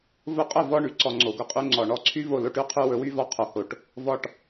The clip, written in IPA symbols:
v ʊ˧ qʼ ʊ˦˨ v ɔ˧ ɳ y˨ ǀ ɔ˨ ŋ͡ǀ o˨ ɡ ʊ˧ qʼ y˧ ŋ͡ǀ ɔ˨ ɳ ɔ˧ ǀʰ y˦ v o˦˨ l o˧ ʈ y˦ qʰ ʉ˧ w ɵ˨˦ w y˧ v ɔ˧ qʰ o˨ h o˨ ʈ | v ɔ˨ ʈ

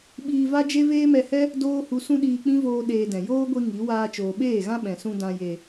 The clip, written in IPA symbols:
ɓ iː˧ v a˦ d͡ʒ e˦ v eː˦ m ɛ˧ h ɛ˦ | d oː˦ h u˧ s ũ˦ ɗ iː˧ k͡p ĩ˦ v oː˧ ɗ eː˧ d ɛ̃˨ j oː˦ ɡʷ i˧ ŋ i˨˦ w aː˧ t͡ʃ oː˨ ɓ eː˦˨ ɣ ã˦ ɓ ɛ̃˨ s ũ˧ d ã˨ j e˨

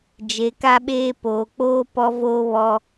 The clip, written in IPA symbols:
d͡ʒ e˨ k a˦ ɓ eː˦ p oː˨ k͡p oː˦ p ɔ˦ v oː˦ β ɔ˦

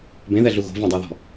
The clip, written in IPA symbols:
b ẽ ð ɛ ɮ u ɣ o̤ v ẽ dˤ ɤ ð ɔ̤

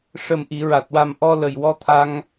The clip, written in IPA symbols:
ʂ ə˨˩ m ʔ i˨˩˨ ɹ a˨˩ t̚ w a˨˩ m ʔ ɔ˧ l ə˨˩ j w ɔ˧ t̪ʰ a˧ ŋ

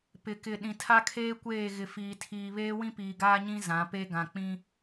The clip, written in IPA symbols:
p ɪ˨ k ɪ˨ ɗ ĩ˨ tʰ a˦ kʰ eː˦ kʷ eː˦˨ ɣ ɪ˨ f iː˨ tʰ iː˨ β eː˦ w ĩ˦ p iː˨ ɡ aː˦ ɲ ĩ˦ z ã˨˦ p e˦ ɡ ã˨ k͡p ĩ˦

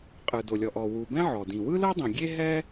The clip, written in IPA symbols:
qʼ ɯ˩ d o˩ lʲ ɔ˩ ʔ ɔ˩ w u˩ b ɛ̃˥ ʕ ɔ˩ d ĩ˩ w ɯ˥ l ɤ˥ dˤ ĩ˩ ɡʲ e˥ ɦ ɛ˥

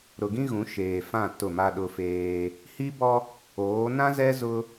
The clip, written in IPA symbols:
ɾ ʊ˨ ɡ ĩ˦ ɣ ũ˨˦ ʃ eː˨ f ã˦˨ t ʊ˦˨ m a˦ ɗ ʊ˦ f eː˦ | h i˦ b ɔ˦ | oː˨˦ n ã˦ z ɛ˦ z ʊ˦

